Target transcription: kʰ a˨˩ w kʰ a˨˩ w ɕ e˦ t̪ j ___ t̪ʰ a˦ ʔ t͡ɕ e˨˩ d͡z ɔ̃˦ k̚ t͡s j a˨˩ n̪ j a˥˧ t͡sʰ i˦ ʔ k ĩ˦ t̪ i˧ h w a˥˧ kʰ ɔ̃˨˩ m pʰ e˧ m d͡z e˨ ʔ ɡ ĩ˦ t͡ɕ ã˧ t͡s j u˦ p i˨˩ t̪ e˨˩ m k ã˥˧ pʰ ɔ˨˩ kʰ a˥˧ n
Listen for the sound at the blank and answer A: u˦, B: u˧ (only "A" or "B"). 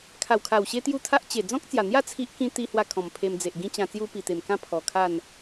A